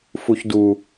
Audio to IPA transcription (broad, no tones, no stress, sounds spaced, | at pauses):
f u ç d u